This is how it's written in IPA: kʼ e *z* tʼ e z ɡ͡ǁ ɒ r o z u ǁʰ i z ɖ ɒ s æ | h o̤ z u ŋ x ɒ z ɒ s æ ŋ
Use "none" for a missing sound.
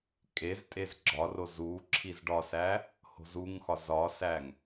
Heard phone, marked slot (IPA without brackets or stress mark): z